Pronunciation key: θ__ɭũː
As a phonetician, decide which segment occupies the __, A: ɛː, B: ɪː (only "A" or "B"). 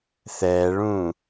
A